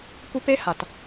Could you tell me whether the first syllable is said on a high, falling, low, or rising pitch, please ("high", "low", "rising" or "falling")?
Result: high